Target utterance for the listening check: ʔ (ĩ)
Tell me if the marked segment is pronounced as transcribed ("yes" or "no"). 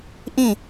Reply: yes